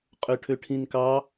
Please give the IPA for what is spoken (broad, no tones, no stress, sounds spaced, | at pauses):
qʼ ø ʈʰ ø ʈʰ ĩ n k ɑ